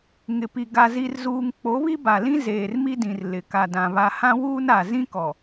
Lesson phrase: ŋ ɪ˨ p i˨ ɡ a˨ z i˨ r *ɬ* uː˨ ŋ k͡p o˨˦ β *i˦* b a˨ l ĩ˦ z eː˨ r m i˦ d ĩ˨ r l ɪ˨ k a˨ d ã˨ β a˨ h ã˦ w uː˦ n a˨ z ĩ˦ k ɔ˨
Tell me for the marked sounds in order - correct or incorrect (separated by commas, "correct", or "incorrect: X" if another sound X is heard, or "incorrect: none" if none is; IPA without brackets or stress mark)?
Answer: incorrect: z, correct